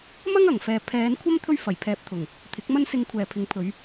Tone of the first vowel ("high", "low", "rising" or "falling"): high